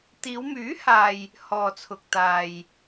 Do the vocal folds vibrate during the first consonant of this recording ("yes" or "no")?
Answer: no